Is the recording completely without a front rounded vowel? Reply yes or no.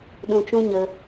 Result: yes